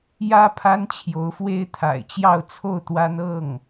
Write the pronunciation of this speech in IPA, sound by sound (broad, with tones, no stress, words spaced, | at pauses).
jä˥ pʰa˥nt͡ɕʰjo˧˥ʊ̯fwe˥ɪ̯t̪ʰa̰˨˩ɪ̯ t͡ɕjɑ˥˧ʊ̯t͡sʰo˥˩ʊ̯t̪wa˥n ɤ˥˩ŋ